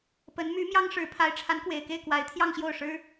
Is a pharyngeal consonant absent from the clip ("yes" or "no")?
yes